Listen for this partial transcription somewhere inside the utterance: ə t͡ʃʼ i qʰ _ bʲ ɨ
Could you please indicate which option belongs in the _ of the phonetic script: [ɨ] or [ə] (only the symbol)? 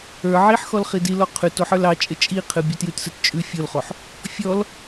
ɨ